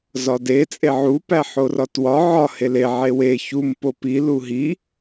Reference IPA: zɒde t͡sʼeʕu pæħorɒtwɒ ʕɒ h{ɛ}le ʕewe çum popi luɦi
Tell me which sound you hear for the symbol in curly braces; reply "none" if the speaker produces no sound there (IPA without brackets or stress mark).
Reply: e